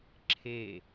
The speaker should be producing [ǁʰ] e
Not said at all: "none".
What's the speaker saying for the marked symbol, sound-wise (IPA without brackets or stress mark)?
ǁʰ